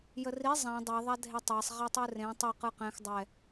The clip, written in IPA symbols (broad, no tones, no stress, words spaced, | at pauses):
jəri zˤæ̃ dˤɛ ðˤadʱetˤæsˤ ʁɛtˤɯrẽ tˤɯ qɯqɛ̃x dˤɛ